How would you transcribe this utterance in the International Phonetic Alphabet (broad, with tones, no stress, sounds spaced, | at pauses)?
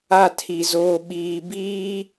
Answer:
a˦˨ tʰ i˨ z oː˨ ɓ iː˨ b iː˦